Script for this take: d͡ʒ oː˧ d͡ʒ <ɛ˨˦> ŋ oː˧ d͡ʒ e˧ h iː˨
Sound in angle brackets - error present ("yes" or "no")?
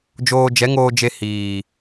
no